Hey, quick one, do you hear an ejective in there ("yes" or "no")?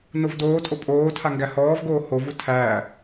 yes